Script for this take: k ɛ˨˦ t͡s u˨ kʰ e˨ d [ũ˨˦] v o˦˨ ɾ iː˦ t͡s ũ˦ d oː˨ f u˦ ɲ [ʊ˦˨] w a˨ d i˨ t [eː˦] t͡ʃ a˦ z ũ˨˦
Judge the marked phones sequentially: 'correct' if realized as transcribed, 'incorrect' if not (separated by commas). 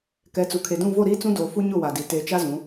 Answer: incorrect, correct, incorrect